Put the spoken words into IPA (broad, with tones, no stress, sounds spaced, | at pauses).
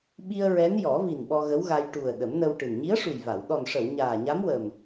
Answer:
ɓ i˧ ə̯ ɹ ɛ˧˥ n j ɔ˨˩˦ v i˨˩ n ɓ ɔ˧ ɣ ə˧˥ w ɣ a˧ j ʈ u˨˩ ə̯ ɗ ə˨˩˦ m n ə˧ w ʈ ɨ˨˩ n ɲ i˧˥ ə̯ ʂ u˨˩ j v a˨˩˨ w ɗ ɔ˨˩ n ʂ ə˨˩˨ w ɲ aː˨˩ ɲ a˧˥ m w ə˨˩ m